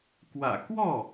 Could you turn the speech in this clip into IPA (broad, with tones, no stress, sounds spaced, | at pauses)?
k w ä̰˨˩ k w ɔ˥˩